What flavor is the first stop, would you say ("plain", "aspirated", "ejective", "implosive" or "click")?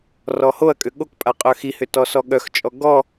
ejective